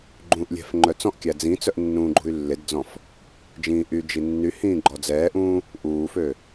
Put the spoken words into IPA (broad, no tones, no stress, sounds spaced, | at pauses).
ɡ͡ǃ ũː ʔ lʲ ɛ̤ f ŋ͡ǃ œ t͡s ɔ̃ ʔ kʲ æ d͡z ĩ t͡s œ ʔ nː ũː ɡ͡ǃ ṳ y̯ lː e d d͡z ɔ̃ f | d͡ʒ ĩː ʔ y d͡ʒ i nː y h ĩː ɡ͡ǃ ɔ d͡z ɛː ʔ ũː | ʔ uː f ø